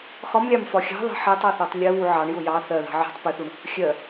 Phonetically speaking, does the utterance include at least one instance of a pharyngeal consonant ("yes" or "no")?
yes